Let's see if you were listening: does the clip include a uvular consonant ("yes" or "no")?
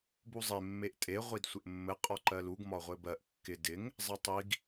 yes